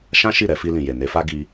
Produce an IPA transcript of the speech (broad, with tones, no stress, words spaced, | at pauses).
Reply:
ʃã˦ʃi˦˨ɾɛ˧ fi˧lĩ˨je˨ ne˨˦fa˦ ɡi˧